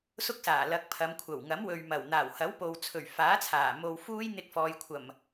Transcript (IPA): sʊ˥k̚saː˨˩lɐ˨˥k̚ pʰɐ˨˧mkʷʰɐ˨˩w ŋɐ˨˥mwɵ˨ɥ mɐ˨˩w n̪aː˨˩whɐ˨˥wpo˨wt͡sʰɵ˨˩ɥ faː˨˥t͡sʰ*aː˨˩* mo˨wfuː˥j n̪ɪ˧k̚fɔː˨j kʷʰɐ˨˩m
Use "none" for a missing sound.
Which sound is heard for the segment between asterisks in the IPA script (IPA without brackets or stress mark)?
aː˨˩